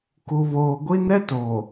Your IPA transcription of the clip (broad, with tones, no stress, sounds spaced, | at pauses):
k u˨ β oː˨ ɡʷ i˦ n ɛ˦ t oː˨